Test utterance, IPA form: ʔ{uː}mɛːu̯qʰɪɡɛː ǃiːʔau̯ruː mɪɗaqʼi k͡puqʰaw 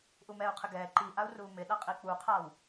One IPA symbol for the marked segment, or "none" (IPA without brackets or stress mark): u